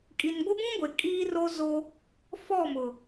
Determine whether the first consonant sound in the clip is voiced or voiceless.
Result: voiceless